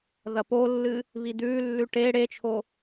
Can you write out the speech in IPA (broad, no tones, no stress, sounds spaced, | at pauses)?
ð ɐ p o lː ɨ | β i d̪ ʉː lː ʉ ʈ e ɽ e t͡ʃʰ o